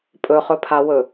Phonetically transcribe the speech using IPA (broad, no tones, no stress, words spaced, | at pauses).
pʼɵχɵ pʰawɵ